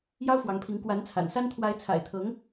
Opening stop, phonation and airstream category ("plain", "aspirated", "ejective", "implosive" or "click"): aspirated